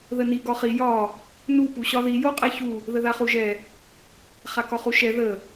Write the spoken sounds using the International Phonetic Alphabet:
ð ə n i ɡ ɒ χ i j ɒ | n u p u ɕ ɒ ð i j o qʼ ɛ ç u | ð ə ð a χ u ʒ ɛ | χ a k ɒ χ u ʃ ɛ ð ə

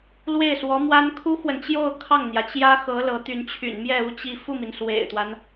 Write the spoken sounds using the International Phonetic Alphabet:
l w e˥˩ ɪ̯ s w ɔ˧˥ m w a˥ n kʰ u˥ x w ə˨ n t͡ɕ j o˥˧ ʊ̯ kʰ ɑ˥˩ ŋ n̪ j ä˩ t͡ɕ j ä˥ x ɤ˧˥ l ɤ˧˥ t̪ y˧˥ n t͡ɕʰ y̰˨˩ n m j ɛ˥˧ u˥˧ t͡ɕ i˥˧ f u˥˩ m i˩ n s w ḛ˨˩ ɪ̯ t̪ w a˦ n

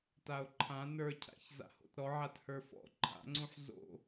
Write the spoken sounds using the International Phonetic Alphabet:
t a o̯ ǃʰ ã n ə˞ cʰ a̰ ç z a̰ h o̰ t ɾ ɔ ʕ a t h ə˞ f ɔ̰ ǃʰ a̰ ŋ͡ǀ ũ ħ z o̰

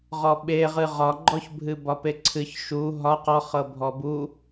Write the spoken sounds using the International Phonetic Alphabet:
ʁ ɔ ɓ e ʁ ɨ ʁ ɒ ɡ͡ǃ ɔ ç bʱ ɨ b ɒ p e ǀʰ ɨ ç ʃ u ɦ ɒ q ɔ χ ɤ bʱ ɔ b u

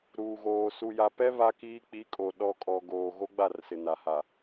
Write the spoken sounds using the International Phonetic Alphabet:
ɾ uː˨ ɣ oː˨ s u˨ j a˨ p ɛ˦ β a˦ k iː˦ k͡p i˨˦ kʼ o˨ ɗ ɔ˨ kʼ ɔ˨ ɡ oː˨ ɣ o˦ ɡ͡b a˦˨ r s ɪ˨ n a˨ h a˨

